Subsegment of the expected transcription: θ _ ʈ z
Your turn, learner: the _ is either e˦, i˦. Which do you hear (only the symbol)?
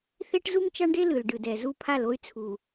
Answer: e˦